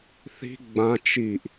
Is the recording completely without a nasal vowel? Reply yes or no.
no